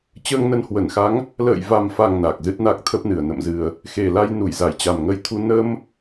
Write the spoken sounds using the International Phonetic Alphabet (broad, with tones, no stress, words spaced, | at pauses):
t͡ɕəː˧ŋnə˧nhwə˧˩nxa˨˦ŋ | lə̰ː˧˨jva˨˩mfa˨˩ŋ na˨˩k̚ zɨ˦˥t̚na˦˥k̚t̪ʰə˦˥p̚nɨ˨˩ə̯ nə̰˧˨mzɨ˨˩ə̯ | xe˨˩la˧jnu˧˩j za˧˩jt͡ɕa˨˩mŋə˧jt̪ʰu˧ nə˧m